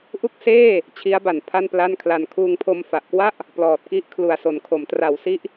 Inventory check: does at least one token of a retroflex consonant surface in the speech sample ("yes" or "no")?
no